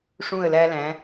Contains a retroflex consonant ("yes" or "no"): yes